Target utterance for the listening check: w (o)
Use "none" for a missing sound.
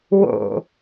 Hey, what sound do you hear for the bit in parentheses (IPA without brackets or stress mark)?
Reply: o̰